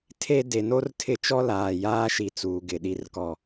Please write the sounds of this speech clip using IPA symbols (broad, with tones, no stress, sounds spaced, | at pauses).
tʰ e˦ d e˨ n o˦ r tʰ ɪ˦˨ t͡ʃ ɔ˦ l aː˨ j aː˦ ʃ i˨ t͡s uː˨ ɡ ɪ˨ ɗ i˦ r k ɔ˦